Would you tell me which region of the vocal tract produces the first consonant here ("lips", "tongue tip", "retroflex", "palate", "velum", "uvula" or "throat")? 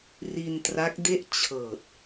tongue tip